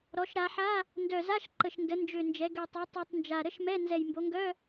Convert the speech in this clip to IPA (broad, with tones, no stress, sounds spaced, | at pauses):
ɾ ɔ˩˧ ʃ ɾ a˩˧ ħ a˧˥˧ | n d œ˨˩ z a˧˥˧ ʃ ǃ ə˨˩ ʃ n d ə˩˧ n d͡ʒ ø˨˩ n d͡ʒ ɛ˩˧ ɡ ø˨˩ tˤ œ˩˧ tˤ y˨˩ tˤ n d͡ʒ a˨˩ ɾ ə˧˥˧ ʃ m ɛ˧˥˧ n z ɛ˨˩ j m b o˩˧ ŋ ɡ œ˧˥˧